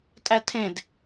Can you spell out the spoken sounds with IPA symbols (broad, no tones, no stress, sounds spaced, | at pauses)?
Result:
tʼ æ tʰ ẽ d